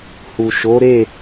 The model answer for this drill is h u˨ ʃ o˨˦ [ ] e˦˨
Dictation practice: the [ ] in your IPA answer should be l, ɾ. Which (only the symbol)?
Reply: ɾ